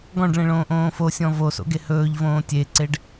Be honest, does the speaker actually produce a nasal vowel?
yes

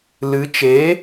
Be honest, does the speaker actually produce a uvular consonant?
no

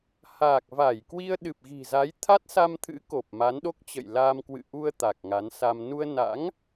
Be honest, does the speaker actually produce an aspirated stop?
yes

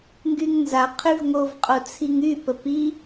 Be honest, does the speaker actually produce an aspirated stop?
yes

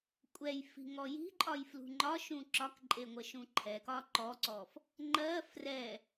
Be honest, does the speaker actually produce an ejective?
yes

